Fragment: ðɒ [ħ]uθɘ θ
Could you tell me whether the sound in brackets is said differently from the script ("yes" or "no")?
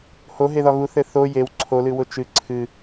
yes